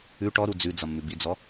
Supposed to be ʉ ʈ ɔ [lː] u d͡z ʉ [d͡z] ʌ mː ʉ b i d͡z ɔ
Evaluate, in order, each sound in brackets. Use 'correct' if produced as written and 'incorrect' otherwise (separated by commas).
incorrect, correct